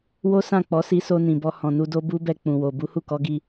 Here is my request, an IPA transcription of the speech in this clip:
wo˦sã˦˨k͡pɔ˨˦si˧ so˧nĩ˨bɔ˧ hɔ̃˨nu˧ do˦bu˦bɛ˧ k͡pũ˨wo˨ bu˨˦hu˦˨kɔ˨˦ɡi˧

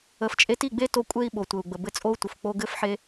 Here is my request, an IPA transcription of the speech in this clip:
ə˨ft͡ʃʼe˧ti˦˨ɡ͡be˦ to˦kʷʼe˦i̯ ɓo˨tʷɘ˨u̯ɡ͡bə˨ bɘ˧t͡sʼo˦u̯tʷɤ˨f k͡po˧ɡɘ˦fħe˦

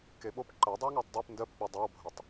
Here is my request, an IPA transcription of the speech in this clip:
keɓop ǃɜ dˤiwŋɜtˤdˤip ndɜpk͡pɜ dˤowbʱɜtˤ

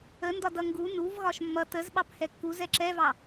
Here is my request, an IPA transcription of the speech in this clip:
əndɒ dʌŋɡu nuv ɣɒʃmːʌ təzɓɑp hɛkːu zɛǁɛvɑ

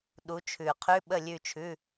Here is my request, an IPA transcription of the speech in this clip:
ɗu˨˦t͡ʃʰʉ˨˩˦qʰʉ˧˥˧ ɓə˦˨lʲʉ˦˨t͡ʃʰʉ˧˥˧

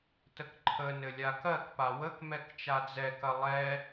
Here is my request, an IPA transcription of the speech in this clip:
təkǃʰənɘ lʲakɜkpa wəkmɛk t͡ʃad͡zɛkɐ lˠɛ

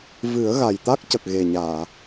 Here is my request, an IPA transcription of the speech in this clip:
vɨ˨˩˦ə̯ ɣa˨˩jt̪a˦˥k̚cə˨˩k̚ ɣe˨˩ɲaː˨˩˨

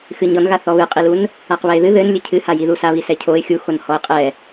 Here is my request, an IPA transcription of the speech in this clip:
xɨɲɔnɣa θɔβɨqʼilun | aqβɛɪ̯ðɨ ðɘn lʲɨcʰɨha jiðusaβi sɛcʰoɪ̯ xʲuxon hɔɪ̯qʼɛ

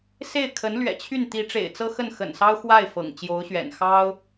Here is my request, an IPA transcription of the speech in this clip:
se˥˩ɪ̯kʰə˧˥n lɥɛ̰˨˩t͡ɕʰy˥˩n t̪i˧˥ʈ͡ʂḛ˨˩ɪ̯t͡sɤ˥ xə˥˩nxə̰˨˩nsɑ˥ʊ̯xwa˥˩ɪ̯ fɤ̰˨˩ŋt͡ɕjo˧˥ʊ̯ɕɥɛ̰˨˩n xɑ˥ʊ̯

